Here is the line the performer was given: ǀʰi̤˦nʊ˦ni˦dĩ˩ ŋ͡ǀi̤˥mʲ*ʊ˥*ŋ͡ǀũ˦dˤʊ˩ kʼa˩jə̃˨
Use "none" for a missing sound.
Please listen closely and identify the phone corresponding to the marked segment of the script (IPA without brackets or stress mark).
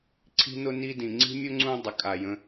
ʊ˥